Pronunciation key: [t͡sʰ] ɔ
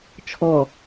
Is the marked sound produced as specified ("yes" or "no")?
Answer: no